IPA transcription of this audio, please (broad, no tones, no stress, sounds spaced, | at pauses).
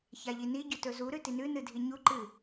ç a ʎ i n i ɟ ɵ t ɵ z u ɾ ʉ t i n ʉ n ɨ dʱ i ɲ u ǃ ɨ